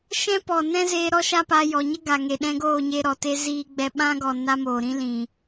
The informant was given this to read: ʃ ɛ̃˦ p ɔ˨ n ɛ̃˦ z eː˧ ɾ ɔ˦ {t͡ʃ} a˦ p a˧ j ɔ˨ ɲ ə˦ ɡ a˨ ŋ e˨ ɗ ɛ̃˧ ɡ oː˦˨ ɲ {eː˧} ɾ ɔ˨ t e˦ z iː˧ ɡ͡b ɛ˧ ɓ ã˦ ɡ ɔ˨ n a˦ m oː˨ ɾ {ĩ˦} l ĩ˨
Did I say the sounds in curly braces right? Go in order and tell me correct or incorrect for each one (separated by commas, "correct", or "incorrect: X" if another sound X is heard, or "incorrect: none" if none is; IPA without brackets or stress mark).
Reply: incorrect: ʃ, incorrect: e˧, correct